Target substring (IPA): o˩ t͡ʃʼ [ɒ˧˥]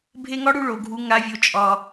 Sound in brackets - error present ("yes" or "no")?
yes